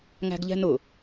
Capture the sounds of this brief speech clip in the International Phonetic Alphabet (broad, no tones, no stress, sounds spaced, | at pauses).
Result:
ŋ æ̤ ɡ ʎ ɛ̤ n ʊ